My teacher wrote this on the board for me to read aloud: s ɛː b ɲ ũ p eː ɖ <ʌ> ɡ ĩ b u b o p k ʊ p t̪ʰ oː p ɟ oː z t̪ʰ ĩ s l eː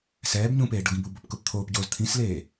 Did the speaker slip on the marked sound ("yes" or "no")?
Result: no